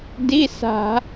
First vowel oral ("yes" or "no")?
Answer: yes